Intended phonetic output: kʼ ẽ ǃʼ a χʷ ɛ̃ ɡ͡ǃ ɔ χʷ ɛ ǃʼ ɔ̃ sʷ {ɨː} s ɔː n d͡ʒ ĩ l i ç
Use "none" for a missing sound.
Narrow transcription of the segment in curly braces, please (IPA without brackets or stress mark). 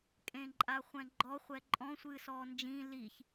ɨː